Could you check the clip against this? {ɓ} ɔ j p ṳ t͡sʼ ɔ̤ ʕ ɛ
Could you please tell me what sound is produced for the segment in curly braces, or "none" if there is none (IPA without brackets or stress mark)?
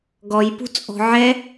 ɡ